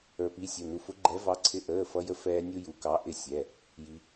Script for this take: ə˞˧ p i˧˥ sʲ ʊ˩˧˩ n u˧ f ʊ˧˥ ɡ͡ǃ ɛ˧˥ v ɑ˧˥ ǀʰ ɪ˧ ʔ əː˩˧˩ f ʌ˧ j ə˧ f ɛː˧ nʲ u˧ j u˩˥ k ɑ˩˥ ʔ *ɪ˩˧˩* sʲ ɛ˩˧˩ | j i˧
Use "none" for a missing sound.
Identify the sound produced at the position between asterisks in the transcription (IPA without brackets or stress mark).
ɪ˧